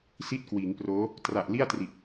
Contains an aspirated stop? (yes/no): no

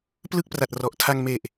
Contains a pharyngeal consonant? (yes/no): no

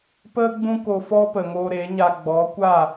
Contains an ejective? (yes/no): no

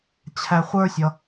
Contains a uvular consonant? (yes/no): yes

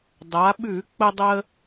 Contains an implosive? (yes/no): yes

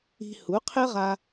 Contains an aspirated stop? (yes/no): yes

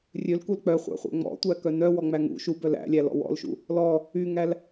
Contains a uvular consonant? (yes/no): yes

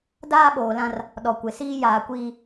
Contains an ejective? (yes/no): no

